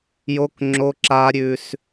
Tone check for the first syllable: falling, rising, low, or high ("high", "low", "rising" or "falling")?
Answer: high